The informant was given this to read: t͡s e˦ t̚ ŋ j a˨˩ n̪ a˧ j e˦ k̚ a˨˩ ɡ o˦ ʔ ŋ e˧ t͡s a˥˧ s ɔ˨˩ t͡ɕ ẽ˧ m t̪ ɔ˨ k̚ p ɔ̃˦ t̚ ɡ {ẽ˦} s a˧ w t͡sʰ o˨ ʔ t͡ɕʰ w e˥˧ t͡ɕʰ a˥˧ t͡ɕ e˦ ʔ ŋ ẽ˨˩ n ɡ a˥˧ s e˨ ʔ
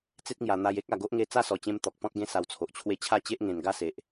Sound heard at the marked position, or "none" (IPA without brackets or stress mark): ẽ˦